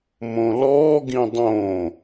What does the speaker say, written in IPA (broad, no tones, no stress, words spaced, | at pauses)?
mõlɔː ɡĩdˤõ